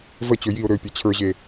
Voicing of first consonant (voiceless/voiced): voiced